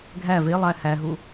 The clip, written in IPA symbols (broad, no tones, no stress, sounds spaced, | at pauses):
ɡʱ æ v e lˠ æ h æ ɦ u